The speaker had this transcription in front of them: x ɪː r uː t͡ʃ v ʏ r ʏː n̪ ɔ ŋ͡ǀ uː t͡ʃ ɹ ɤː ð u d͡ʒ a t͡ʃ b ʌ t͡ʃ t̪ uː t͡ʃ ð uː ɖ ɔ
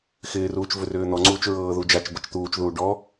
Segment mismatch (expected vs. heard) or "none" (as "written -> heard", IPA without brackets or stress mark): none